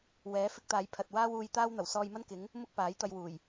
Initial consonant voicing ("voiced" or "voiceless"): voiced